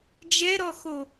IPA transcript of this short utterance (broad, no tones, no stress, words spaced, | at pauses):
d͡ʒɛɾɔxo